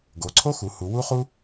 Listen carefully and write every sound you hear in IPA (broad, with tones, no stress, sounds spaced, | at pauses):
ɡ o˩˧ ǀʰ o˥ x u˩˧ h u˩˧ w u˥ χ u˥